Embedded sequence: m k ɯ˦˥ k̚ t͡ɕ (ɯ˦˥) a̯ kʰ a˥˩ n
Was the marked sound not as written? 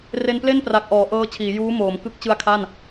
no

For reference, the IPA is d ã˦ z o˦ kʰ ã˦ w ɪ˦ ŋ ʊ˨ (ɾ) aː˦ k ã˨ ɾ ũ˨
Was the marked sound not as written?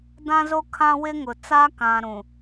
yes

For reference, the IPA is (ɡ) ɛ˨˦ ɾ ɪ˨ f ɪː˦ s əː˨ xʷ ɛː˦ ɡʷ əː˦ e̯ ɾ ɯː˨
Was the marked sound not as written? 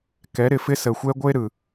yes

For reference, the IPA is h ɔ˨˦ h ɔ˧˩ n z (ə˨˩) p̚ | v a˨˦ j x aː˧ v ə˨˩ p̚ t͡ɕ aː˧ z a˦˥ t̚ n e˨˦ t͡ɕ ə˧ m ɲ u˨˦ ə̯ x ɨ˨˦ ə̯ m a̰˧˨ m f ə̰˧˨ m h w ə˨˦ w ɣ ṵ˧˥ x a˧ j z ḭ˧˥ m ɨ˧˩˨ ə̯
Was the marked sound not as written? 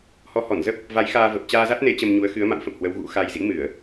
yes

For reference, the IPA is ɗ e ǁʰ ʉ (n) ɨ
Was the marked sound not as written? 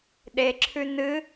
no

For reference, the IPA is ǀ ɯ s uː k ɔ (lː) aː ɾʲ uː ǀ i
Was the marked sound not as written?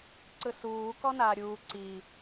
yes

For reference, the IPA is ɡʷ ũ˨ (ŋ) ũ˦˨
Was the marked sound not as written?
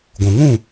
no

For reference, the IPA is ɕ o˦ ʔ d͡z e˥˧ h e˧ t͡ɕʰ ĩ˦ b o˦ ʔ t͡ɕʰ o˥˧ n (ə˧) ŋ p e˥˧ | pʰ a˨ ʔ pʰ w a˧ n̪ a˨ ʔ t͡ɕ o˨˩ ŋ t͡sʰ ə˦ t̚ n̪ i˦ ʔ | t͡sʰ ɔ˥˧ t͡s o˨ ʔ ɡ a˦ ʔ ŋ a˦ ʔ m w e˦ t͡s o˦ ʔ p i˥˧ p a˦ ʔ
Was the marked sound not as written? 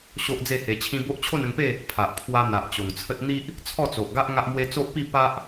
no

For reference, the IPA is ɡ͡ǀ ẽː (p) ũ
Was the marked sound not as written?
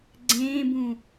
yes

